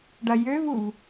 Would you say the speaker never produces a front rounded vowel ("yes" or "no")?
no